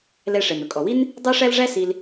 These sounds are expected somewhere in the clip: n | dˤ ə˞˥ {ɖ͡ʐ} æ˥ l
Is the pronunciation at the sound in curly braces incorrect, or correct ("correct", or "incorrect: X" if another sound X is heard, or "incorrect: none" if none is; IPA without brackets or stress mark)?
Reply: incorrect: ʂ